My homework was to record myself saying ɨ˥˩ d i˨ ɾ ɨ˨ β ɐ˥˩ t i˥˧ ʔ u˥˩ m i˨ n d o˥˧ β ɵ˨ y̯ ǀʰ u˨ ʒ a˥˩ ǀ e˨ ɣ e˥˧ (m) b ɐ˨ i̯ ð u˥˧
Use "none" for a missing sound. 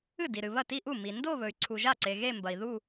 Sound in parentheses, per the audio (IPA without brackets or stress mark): m